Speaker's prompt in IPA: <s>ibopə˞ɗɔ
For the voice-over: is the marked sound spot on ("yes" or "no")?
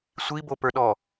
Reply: no